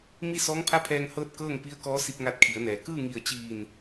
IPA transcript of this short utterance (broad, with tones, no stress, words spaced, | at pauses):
mi˥˨sɔː˧˥ŋpʰa˥˨pʰɛː˧ŋ hɤː˥˨t̚kɤː˥˨ŋ pi˧˥ə̯kɔː˧˥si˧p̚ŋa˧t̚ kʰi˩˧ə̯nɛː˩˧ kɯː˥˨ŋi˧˩ə̯t͡ɕiː˧˩n